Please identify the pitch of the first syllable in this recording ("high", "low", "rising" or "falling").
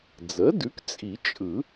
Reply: rising